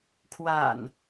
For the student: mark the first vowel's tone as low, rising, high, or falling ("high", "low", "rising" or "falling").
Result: low